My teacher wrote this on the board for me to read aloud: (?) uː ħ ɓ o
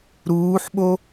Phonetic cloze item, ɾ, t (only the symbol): ɾ